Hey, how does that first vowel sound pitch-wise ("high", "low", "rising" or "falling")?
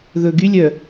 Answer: low